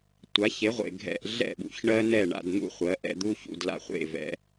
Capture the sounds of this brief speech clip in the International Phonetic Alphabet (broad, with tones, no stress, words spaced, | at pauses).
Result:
tʷa˩˥çe˩˥ʁʷḛ˩ ɡʱɛ̰˧ʔɮɛ̰˥˩ɓṵ˩˥çɳɜ˥ nɛ˥˩ɳa̰˧dn̪ṵ˥χʷɜ˩˥ ʔɛ̰˧d̪u˥ çṵ˥˩dla̰˧χʷḛ˥˩vɛ̰˩˥